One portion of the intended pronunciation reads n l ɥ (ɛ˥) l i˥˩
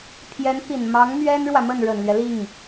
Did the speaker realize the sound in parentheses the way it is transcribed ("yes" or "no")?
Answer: no